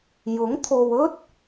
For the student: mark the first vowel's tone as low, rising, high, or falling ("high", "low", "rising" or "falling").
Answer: rising